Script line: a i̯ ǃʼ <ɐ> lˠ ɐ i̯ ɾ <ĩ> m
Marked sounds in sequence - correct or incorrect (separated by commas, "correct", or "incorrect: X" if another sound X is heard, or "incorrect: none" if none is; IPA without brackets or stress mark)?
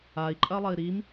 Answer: correct, incorrect: i